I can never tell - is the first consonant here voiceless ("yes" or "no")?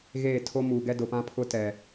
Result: no